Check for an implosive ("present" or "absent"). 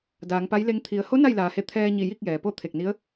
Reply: absent